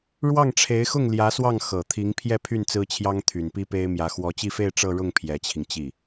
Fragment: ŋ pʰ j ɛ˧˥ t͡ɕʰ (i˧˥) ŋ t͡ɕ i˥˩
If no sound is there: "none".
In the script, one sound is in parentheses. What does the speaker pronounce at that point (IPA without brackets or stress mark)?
i˧